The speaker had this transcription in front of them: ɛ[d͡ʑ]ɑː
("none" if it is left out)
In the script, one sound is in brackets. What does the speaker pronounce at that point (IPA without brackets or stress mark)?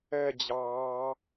d͡ʑ